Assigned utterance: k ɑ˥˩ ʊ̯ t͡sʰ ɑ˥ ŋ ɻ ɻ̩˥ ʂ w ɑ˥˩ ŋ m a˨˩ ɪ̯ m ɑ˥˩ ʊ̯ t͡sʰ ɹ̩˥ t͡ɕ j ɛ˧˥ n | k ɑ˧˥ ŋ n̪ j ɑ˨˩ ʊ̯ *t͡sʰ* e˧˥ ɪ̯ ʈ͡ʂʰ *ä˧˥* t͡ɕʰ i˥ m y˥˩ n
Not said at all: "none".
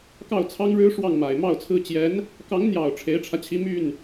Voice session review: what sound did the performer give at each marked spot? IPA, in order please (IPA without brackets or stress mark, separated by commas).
ʈ͡ʂʰ, ä˧